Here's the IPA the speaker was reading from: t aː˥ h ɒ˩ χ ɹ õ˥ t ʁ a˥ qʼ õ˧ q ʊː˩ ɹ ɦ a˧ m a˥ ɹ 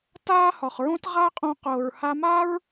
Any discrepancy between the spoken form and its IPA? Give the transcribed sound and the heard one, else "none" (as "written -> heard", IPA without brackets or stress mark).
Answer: ɦ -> h